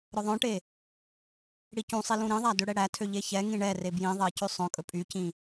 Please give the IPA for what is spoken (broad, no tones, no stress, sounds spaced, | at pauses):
ɾ œ ðˤ œ̃ ʈ e | ɽ i c ũ sˤ i l ũ ɾ ĩ ðˤ æ d ø ɽ ɛ ɽ æ tʰ ø ʎ e ç ɛ ŋ ĩ ɳ ɛ r e b j ĩ ðˤ e c ʉ sˤ œ̃ kʼ ɵ pʼ y c ĩ